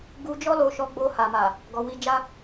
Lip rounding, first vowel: rounded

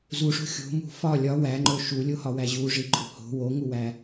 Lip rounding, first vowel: rounded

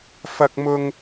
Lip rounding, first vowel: unrounded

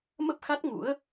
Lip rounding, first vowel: unrounded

